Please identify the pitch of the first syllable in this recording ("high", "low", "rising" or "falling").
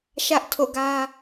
high